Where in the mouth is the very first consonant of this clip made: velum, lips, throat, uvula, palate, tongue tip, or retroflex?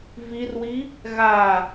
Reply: lips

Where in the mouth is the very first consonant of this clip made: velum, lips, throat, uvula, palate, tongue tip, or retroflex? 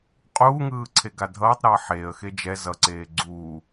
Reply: uvula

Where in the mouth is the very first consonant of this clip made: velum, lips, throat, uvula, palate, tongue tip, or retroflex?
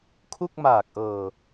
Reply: velum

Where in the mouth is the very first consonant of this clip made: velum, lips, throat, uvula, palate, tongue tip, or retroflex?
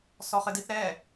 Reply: tongue tip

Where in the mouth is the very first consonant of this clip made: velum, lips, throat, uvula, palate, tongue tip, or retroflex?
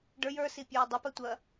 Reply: retroflex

